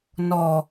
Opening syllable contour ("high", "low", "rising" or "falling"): low